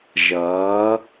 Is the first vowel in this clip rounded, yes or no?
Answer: no